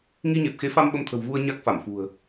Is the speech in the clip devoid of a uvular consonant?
yes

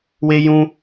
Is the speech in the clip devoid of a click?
yes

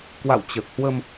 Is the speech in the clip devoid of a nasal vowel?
yes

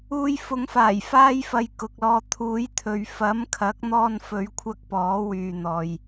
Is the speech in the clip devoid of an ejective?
yes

